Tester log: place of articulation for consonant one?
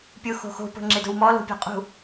labial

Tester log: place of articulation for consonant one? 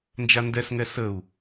alveolar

